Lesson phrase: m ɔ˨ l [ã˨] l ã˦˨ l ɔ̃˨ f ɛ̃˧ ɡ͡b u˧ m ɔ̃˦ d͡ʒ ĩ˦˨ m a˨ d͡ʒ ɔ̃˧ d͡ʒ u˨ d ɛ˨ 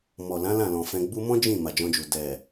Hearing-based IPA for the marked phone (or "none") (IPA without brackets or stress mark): ã˨˦